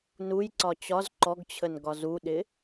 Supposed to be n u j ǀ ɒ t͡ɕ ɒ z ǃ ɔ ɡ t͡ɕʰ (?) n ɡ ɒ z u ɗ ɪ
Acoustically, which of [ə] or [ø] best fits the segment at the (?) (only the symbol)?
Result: ə